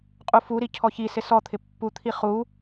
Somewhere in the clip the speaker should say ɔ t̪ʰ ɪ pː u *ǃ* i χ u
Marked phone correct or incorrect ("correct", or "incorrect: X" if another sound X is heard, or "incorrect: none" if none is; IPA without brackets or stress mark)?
incorrect: t̪ʰ